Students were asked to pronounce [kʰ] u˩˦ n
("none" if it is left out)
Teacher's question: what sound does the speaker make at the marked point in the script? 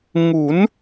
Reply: ŋ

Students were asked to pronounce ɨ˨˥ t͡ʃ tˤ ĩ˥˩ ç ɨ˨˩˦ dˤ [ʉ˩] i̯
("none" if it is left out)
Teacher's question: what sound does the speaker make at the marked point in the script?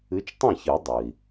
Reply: ɨ˩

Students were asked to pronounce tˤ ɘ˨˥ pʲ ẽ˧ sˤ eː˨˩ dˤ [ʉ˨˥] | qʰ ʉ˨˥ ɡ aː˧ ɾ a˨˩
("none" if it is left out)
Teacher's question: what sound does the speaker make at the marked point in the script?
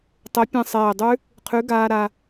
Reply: ʉ˦˥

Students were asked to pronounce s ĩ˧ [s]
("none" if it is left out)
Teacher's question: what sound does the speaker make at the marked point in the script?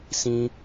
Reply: none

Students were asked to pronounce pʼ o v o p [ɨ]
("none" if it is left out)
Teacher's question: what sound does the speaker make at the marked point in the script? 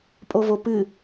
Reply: ɨ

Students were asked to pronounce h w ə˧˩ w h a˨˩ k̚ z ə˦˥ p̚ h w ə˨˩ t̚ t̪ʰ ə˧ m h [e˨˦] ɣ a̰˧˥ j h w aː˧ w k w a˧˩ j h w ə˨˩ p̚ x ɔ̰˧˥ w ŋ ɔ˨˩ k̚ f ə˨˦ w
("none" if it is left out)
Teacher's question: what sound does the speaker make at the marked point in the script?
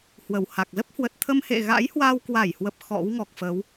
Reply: ḛ˧˨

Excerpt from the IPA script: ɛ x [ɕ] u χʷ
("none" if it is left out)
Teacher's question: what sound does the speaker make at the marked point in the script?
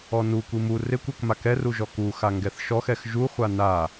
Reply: ʒ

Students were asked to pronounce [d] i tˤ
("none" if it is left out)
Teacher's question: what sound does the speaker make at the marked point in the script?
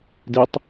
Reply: d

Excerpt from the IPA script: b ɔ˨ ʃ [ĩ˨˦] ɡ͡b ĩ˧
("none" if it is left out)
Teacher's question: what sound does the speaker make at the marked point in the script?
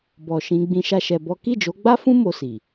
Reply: ĩ˨˦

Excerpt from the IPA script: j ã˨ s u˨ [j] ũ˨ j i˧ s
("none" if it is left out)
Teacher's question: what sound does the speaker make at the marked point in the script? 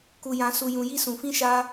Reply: j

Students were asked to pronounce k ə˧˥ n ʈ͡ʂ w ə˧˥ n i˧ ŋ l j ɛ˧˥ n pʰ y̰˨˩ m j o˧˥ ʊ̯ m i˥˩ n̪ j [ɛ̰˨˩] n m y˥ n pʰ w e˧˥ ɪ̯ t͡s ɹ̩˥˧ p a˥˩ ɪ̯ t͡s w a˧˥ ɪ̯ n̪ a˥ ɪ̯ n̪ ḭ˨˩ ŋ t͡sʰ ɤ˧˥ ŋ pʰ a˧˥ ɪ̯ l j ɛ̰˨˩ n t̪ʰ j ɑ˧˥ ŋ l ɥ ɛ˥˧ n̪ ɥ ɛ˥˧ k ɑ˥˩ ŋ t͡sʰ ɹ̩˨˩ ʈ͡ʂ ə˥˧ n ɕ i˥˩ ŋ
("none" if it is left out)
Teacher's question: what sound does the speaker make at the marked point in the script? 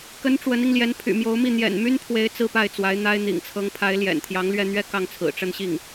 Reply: ɛ̰˨˩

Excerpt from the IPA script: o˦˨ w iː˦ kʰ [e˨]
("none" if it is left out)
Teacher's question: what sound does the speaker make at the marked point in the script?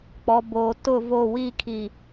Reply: i˨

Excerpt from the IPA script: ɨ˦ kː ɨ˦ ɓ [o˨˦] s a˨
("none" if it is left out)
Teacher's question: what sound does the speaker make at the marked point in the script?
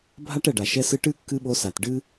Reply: o˧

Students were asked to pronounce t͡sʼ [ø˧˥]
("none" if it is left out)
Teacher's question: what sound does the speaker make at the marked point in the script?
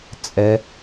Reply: ɛ˧˥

